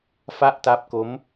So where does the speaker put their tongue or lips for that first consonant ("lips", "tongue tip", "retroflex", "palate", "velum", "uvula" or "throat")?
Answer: lips